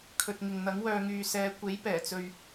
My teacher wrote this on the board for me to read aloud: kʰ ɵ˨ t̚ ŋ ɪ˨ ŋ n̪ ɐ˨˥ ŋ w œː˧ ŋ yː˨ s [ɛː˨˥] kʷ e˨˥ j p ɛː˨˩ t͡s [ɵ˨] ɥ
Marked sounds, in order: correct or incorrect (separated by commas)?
incorrect, correct